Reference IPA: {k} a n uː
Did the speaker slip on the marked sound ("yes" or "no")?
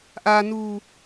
yes